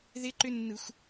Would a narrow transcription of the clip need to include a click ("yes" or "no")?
yes